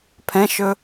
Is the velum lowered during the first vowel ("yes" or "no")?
yes